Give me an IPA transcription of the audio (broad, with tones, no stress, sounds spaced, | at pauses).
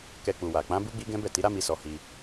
k ɛ˧ k͡p u˨ w a˨ k͡p ã˨˦ b u˦ ɡ͡b i˦ ɡ ɛ̃˦ b ɛ˦˨ t i˨˦ ɾ a˦ m i˧ s ɔ˧ h i˧